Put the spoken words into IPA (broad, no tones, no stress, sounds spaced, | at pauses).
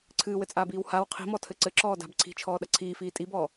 ǀʰ ɨː w ɘ t͡sʼ aː b iː w h a w qʰ i̤ m ɔ tʰ ɘ ǀ ɘ ǁ ɔː d a̤ b ǀʰ i̤ t͡ʃʰ ɔː ɗ ɐ ǀʰ iː f iː tʼ i b ɔː